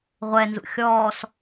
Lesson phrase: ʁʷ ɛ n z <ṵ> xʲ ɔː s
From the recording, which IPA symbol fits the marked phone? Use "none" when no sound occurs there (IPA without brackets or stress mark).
ṵ